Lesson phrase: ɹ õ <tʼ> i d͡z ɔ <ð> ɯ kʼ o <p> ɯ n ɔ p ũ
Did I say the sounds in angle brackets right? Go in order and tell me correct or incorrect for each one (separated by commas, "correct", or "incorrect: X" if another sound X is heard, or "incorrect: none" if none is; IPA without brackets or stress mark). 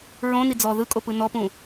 incorrect: n, correct, correct